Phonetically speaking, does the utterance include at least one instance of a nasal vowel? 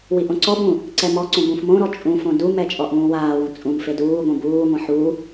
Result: yes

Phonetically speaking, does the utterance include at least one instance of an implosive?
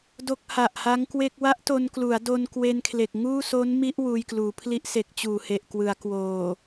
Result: no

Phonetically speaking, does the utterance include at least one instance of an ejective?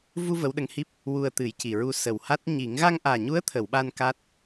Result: no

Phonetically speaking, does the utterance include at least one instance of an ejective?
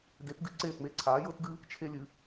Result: no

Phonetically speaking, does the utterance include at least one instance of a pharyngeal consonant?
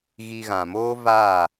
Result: no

